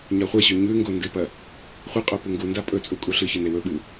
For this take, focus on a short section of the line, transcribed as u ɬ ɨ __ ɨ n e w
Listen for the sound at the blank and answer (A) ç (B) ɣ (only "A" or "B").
A